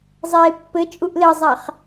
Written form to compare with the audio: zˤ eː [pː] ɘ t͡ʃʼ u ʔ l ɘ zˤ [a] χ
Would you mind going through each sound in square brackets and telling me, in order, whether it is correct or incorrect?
correct, correct

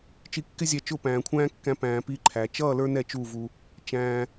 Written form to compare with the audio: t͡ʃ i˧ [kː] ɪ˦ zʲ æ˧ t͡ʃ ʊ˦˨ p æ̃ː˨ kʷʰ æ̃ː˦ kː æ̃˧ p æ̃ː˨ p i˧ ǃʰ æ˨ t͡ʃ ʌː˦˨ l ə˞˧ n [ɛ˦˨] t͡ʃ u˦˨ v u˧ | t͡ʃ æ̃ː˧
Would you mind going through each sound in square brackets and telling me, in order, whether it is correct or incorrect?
correct, correct

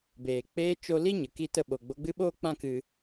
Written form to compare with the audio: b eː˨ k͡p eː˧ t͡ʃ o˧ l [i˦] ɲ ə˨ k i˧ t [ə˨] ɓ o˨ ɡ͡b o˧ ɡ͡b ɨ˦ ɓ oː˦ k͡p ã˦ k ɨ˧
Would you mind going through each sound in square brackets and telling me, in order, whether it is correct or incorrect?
correct, incorrect: ə˧

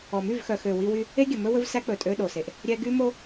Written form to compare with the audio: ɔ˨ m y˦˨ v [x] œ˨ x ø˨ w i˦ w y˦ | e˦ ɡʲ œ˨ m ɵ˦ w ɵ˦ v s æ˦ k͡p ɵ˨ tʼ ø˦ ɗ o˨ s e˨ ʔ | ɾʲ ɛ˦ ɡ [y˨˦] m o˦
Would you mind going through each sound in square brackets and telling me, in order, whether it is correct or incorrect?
correct, incorrect: y˦

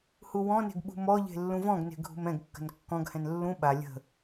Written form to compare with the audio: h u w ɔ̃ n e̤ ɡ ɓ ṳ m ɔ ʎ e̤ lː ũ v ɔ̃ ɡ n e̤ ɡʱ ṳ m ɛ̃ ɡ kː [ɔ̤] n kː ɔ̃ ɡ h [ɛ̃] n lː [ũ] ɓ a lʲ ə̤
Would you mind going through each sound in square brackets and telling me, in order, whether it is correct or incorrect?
incorrect: ə̤, correct, correct

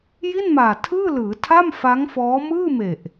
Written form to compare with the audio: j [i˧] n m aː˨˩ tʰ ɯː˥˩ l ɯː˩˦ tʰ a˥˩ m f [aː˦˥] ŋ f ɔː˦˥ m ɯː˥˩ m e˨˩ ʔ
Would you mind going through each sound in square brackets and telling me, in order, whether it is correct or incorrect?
incorrect: i˥˩, incorrect: a˦˥

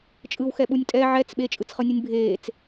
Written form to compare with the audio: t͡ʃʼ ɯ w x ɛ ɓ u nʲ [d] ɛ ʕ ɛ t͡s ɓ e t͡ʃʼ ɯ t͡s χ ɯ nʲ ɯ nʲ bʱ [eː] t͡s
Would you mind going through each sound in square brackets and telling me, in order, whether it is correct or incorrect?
incorrect: tʼ, correct

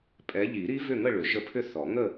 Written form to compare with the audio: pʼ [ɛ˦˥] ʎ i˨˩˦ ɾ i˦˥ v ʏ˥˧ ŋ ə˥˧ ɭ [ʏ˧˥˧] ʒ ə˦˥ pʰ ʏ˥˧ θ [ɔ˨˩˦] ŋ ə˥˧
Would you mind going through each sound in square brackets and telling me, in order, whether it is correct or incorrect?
incorrect: ɛ˨˦, incorrect: ʏ˨˩˦, correct

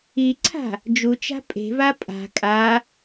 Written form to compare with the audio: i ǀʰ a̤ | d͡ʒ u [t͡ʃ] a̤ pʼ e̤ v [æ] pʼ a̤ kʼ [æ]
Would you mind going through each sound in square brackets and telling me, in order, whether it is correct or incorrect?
correct, incorrect: a, incorrect: a

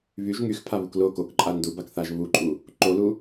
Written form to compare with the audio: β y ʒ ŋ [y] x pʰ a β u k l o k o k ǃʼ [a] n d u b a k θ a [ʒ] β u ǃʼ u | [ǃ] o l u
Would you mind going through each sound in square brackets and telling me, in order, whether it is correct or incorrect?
correct, correct, correct, correct

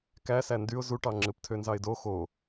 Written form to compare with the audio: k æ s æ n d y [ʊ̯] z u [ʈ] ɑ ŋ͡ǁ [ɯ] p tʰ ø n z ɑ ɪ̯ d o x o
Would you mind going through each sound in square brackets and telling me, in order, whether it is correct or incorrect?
correct, correct, correct

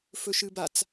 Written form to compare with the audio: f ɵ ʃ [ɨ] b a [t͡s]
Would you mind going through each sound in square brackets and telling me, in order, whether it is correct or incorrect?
correct, correct

